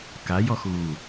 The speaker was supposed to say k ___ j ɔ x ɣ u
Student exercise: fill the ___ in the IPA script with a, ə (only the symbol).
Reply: a